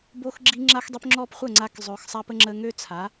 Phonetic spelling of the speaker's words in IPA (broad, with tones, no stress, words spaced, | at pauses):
bo˧xɡ͡ǁi˧ ŋ͡ǁa˧xdˤø˧pŋ͡ǁɔ˧p χʷə˦˨ŋ͡ǀa˧k zˤø˨xsˤa˧pə˧ ŋ͡ǁə˧ŋø˦t͡sʰa˨˦